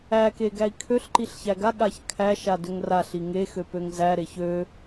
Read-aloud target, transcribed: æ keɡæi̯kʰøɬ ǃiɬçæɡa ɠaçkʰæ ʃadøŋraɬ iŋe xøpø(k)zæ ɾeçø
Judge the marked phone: incorrect: ŋ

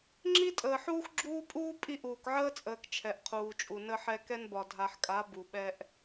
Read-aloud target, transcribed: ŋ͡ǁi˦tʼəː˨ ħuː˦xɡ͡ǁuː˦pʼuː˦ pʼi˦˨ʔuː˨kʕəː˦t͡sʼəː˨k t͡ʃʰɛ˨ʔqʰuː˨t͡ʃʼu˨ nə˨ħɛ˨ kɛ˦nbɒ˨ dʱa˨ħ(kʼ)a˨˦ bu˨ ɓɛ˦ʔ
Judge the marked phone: correct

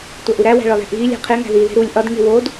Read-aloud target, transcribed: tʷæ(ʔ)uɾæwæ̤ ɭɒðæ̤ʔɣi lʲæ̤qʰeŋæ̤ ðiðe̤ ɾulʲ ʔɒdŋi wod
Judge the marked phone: correct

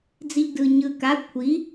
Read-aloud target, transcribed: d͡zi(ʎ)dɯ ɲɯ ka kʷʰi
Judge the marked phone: correct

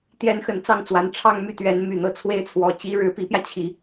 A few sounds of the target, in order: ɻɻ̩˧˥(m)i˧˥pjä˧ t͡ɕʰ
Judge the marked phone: incorrect: p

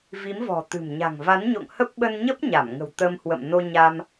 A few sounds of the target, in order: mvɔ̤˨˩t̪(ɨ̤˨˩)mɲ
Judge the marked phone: correct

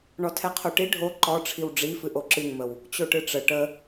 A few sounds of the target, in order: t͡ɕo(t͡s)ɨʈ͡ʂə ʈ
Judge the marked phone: incorrect: ʈ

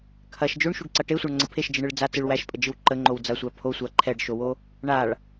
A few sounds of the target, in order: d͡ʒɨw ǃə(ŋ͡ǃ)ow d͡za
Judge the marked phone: correct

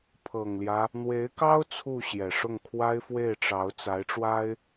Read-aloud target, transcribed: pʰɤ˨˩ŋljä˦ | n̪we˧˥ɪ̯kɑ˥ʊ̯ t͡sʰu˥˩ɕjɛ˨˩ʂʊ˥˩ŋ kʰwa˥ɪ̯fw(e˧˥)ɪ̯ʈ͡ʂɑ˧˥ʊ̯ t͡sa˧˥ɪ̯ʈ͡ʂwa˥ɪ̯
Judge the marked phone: incorrect: e˥˩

